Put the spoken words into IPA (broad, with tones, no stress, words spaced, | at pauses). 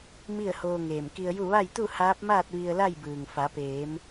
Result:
mi˥˨ə̯ hoː˧ŋeː˧˩mki˧ə̯ju˥˨ ʋa˥˨jt̪u˥˨ haː˧˥p̚maː˥˨t̚ ʋi˧ə̯la˥˨jbɯː˩ŋ fa˩˧peː˩˧m